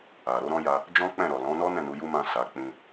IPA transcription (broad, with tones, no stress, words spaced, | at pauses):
a˨ ɾo˨˦ɾɔ̃˦ja˧ | d͡ʒɔ̃˦k͡pɛ̃˦˨ɾɔ˨ lɔ̃˨˦nɔ˦ nɛ̃˦˨nu˨˦ju˦mã˦˨ sa˨˦ k͡pĩ˧